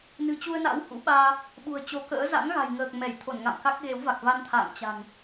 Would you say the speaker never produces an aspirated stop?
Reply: no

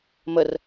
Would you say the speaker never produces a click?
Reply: yes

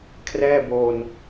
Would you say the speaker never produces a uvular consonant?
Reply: yes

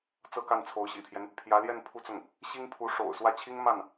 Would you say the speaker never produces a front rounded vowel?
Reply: yes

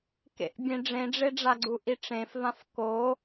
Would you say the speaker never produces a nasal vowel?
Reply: no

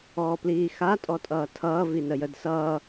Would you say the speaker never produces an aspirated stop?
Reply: no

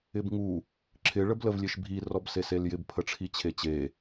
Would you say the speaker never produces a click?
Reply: no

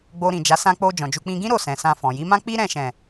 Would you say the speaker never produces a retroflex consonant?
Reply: yes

